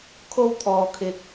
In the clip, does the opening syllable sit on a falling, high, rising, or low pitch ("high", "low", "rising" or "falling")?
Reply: high